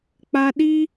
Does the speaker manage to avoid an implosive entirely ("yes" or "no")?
no